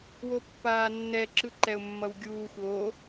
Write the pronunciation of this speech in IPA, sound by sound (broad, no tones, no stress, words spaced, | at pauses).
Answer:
wopːaːnːɛ ǁɯǃɛʊ̯mːʌwɡʲuːxʷ o